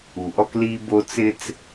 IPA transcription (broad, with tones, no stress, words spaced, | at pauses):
u˨ʔɔ˦kliː˦ bo˦t͡sɪ˦t͡s